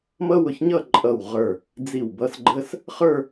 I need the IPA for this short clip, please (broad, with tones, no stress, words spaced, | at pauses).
mʌ˥wʊ˧˩çɲʌ˥˧ ǃʼʌ˧˩w ʁə˞˧˩ | d͡zi˧˩wbʌ˧s ɡ͡ǃə˥s | χə˞˥˧